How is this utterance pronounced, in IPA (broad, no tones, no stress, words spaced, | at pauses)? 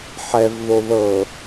ħɛv ðoðɤ